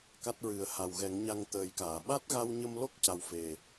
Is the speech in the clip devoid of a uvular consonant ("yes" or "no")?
yes